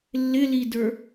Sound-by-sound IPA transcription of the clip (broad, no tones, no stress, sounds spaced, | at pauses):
lː ɪ l i d ə˞